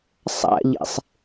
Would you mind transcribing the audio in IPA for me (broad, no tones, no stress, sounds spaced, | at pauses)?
sˤ a̰ ʎ ḛ sˤ